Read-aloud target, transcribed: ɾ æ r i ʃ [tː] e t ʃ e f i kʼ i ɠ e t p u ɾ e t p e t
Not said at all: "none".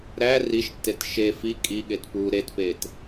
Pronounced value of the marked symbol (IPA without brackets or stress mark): tː